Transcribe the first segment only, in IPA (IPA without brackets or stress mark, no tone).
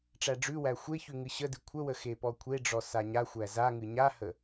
ʈ͡ʂ